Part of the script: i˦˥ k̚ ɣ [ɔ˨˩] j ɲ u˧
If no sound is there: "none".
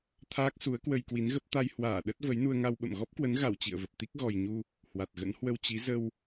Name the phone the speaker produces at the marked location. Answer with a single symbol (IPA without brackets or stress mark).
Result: ɔ˨˩